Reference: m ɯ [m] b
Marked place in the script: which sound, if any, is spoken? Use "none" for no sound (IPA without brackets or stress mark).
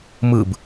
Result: none